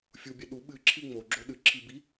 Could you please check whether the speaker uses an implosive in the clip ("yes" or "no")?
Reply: yes